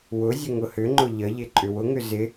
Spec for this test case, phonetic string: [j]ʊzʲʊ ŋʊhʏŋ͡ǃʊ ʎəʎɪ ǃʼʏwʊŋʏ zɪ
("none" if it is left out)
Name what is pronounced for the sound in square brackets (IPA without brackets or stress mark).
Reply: w